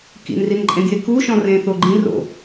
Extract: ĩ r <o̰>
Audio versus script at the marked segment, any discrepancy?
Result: no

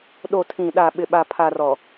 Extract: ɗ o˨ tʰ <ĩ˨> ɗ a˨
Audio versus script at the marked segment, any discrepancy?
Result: no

